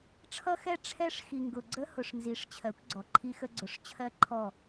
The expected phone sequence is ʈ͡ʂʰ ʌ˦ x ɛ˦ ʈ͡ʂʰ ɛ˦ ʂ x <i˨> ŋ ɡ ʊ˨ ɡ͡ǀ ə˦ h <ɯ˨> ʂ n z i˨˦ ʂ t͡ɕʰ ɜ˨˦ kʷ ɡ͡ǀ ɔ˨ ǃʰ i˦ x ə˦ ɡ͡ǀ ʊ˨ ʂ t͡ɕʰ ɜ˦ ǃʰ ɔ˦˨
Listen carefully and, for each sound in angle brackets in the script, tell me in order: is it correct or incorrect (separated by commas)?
correct, incorrect